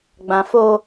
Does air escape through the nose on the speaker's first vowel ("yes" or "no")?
yes